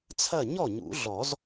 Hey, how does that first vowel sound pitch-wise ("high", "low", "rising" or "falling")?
falling